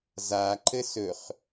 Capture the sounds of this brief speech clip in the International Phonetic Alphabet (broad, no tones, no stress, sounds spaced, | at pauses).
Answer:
z a ǃ ɘ s ɵ χ